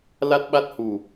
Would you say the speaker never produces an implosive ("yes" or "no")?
no